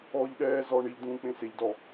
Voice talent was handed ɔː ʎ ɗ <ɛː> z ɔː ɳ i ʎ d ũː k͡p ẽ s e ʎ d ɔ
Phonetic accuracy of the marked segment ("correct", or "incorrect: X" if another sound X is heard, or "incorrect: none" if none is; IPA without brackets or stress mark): correct